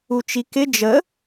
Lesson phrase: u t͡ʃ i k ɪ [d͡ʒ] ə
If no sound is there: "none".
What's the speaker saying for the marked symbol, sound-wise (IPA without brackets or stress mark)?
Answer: d͡ʒ